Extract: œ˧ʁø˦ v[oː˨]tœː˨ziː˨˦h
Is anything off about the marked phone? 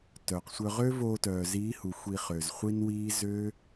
yes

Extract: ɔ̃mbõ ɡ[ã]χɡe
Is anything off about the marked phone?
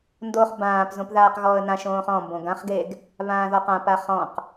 no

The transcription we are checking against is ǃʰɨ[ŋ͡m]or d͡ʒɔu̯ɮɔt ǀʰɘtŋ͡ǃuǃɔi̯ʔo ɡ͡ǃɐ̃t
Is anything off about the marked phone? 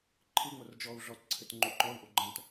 no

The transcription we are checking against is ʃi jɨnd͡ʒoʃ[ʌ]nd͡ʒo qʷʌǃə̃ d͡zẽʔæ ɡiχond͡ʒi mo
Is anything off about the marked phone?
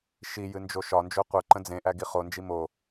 yes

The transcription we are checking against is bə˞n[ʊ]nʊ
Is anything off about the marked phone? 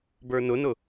no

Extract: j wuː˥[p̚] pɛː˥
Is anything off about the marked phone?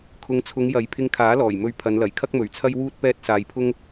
yes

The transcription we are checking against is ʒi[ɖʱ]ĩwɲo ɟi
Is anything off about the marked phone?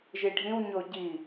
no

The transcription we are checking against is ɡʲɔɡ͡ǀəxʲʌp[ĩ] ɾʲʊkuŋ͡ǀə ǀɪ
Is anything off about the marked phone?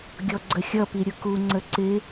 yes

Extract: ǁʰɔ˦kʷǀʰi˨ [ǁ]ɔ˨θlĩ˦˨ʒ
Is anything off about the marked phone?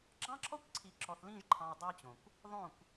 no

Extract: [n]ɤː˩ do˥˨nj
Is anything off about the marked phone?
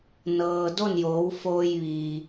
no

